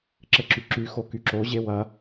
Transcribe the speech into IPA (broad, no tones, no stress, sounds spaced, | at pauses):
ǁ ɘ ǁ y ǁ y x o k y ǁ o ʑ e w ɐ